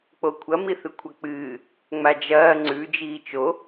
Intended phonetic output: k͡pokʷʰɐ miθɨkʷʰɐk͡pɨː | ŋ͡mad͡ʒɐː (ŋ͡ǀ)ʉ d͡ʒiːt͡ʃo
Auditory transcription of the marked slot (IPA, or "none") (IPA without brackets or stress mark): ŋ͡ǀ